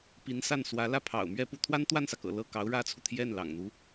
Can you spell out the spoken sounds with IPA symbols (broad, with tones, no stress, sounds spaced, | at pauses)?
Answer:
p i˧˥ n s a˥˩ n s w ä˧˥ l ä˥˩ pʰ ɑ̰˨˩ ʊ̯ m ɥ ɛ˥˧ p u˥˩ t̪ʰ w a˥ n t̪ w a˥˩ n s ä˩ k ɤ̰˨˩ l ɤ˥˩ k ɑ˧˥ ʊ̯ ɻ ä˥ t͡sʰ u˨ t̪ʰ j ɛ˥˩ n l ɑ̰˨˩ ŋ n̪ u˧˥